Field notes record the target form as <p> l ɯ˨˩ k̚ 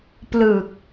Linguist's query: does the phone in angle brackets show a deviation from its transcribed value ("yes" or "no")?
no